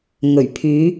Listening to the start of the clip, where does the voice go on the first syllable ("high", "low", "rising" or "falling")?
low